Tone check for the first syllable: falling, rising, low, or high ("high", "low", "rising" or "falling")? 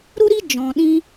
high